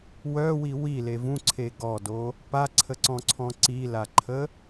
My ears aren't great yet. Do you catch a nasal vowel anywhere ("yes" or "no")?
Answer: yes